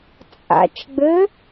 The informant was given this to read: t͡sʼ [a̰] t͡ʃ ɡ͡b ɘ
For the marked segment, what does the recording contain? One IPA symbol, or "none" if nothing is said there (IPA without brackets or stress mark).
a̰